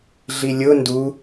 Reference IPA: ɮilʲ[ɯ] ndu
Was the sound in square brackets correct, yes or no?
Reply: no